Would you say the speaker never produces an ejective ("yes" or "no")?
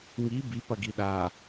yes